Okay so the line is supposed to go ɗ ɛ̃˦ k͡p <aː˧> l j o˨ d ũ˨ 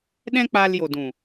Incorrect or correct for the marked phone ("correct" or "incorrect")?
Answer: correct